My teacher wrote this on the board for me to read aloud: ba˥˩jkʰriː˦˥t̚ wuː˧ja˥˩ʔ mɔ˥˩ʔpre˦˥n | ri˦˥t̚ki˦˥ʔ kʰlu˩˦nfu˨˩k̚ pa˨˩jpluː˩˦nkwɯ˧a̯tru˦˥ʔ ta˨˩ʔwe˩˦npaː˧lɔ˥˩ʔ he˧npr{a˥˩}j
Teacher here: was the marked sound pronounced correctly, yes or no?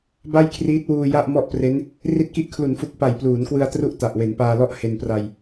no